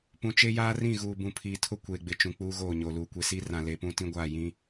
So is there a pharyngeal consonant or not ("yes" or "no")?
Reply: no